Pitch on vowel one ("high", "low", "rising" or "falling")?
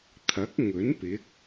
rising